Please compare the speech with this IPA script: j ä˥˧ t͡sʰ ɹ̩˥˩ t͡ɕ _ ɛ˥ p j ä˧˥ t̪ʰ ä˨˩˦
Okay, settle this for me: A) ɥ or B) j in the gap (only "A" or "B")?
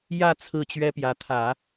A